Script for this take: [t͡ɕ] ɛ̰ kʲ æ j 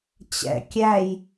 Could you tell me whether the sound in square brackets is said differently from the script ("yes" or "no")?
no